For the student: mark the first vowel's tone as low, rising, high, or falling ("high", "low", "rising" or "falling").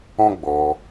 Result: high